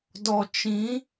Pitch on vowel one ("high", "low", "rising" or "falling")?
low